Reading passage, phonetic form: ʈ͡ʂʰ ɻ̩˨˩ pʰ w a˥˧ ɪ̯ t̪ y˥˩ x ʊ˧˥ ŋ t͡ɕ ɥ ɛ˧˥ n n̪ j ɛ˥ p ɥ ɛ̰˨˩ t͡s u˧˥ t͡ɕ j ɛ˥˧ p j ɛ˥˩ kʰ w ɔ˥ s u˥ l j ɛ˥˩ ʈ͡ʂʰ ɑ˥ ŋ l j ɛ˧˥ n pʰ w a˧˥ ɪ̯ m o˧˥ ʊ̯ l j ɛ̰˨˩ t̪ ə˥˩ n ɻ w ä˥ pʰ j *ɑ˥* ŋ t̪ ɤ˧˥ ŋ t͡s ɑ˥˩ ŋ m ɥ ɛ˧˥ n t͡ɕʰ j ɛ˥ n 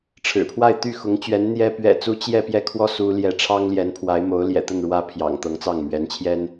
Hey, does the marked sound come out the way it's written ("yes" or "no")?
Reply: no